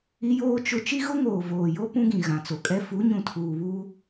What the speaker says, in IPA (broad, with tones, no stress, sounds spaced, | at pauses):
i˦ j oː˦ t͡ʃ ʊ˦ t͡ʃ i˦ ɣ ʊ˦ ŋ oː˨ v oː˨ j o˦ p ũ˦ ɡ ĩ˨ ɣ ã˨ t͡s o˨ kʼ ɛ˦ f u˨˦ ɲ ũ˨ tʰ uː˨ β uː˦